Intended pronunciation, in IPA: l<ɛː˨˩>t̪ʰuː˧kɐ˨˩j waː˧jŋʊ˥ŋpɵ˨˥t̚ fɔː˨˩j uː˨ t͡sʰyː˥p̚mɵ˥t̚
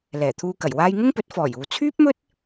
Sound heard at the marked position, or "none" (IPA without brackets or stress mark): ɛː˨˩